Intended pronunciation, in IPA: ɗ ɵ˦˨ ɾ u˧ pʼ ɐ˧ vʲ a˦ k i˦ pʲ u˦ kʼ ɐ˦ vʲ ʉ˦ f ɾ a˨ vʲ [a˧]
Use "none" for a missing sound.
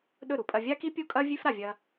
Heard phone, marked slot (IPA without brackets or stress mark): ɐ˧